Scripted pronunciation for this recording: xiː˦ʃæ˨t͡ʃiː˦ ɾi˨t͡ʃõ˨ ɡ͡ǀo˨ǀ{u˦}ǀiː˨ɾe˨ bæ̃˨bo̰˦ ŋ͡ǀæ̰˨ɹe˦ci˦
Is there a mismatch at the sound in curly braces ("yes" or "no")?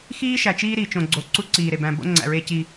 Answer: no